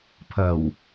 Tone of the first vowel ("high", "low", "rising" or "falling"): low